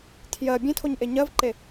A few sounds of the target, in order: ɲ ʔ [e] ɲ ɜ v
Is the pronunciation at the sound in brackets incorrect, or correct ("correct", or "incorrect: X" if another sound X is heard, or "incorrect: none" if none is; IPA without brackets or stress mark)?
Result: correct